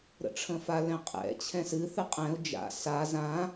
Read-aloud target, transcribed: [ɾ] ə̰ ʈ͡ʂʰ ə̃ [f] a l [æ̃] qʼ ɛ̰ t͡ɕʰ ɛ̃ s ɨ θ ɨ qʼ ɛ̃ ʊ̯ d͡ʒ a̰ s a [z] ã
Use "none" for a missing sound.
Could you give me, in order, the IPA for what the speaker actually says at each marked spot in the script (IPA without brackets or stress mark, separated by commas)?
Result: ɾ, f, ɛ̃, z